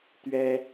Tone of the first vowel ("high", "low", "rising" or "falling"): high